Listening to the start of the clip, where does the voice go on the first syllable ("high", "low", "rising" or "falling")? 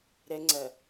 high